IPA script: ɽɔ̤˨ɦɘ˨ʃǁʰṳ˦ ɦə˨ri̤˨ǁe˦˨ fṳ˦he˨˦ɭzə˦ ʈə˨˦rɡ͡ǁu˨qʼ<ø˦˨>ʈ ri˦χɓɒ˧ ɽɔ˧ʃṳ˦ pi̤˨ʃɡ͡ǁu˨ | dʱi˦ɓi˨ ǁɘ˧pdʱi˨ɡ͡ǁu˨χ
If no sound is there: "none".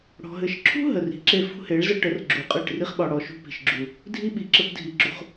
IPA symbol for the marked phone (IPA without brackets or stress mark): ɘ˦˨